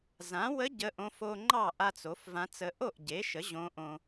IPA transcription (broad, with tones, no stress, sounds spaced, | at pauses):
z ã˩˥ w ə˧˥ ɟ ə˧˥ ʔ õ˧˥ f o˧ ŋ͡ǃ ɑ˥˩ ʔ a˧ t͡s o˩˥ f v ã˧˥ t͡s ə˧˥ ʔ o˥˩ ʔ ɟ e˩˥ ʃ ə˩˥ ʑ õ˧˥ ʔ õ˧